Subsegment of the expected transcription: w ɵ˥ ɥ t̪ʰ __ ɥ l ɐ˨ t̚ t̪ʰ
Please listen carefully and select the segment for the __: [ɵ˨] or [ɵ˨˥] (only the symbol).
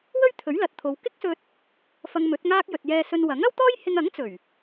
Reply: ɵ˨˥